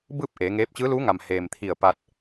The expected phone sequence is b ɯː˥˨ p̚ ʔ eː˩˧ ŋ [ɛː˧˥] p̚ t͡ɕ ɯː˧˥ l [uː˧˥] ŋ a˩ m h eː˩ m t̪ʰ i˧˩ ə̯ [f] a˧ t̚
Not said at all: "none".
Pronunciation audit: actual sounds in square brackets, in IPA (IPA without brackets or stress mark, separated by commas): eː˧˥, uː˧˥, p